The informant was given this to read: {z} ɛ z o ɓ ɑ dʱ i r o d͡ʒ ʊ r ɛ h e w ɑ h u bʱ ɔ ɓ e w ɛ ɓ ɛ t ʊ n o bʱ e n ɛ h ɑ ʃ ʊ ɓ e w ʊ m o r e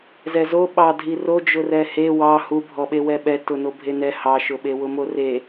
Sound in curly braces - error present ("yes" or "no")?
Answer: no